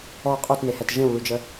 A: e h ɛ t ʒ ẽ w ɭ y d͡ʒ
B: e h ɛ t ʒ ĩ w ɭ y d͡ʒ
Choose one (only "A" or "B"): A